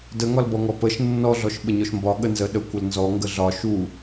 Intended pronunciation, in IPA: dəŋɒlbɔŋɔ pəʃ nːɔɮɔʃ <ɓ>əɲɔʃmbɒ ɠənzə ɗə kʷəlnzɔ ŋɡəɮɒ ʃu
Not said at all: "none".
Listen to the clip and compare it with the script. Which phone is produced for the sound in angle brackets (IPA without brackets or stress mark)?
ɓ